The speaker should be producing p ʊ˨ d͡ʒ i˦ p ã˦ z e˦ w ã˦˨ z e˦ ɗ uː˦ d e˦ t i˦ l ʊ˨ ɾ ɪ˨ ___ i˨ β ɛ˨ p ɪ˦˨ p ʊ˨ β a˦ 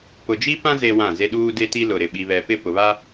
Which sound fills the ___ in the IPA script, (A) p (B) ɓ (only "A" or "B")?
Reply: B